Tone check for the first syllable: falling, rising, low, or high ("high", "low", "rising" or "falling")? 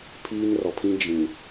high